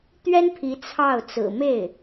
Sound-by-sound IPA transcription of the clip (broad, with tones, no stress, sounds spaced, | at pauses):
t̪ ɥ ɛ˥ n pʰ i˧˥ t͡sʰ ɑ˥˩ ʊ̯ t͡s ɹ̩˨˩ m e˥˩ ɪ̯